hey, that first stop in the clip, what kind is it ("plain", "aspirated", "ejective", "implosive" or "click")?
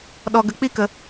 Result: implosive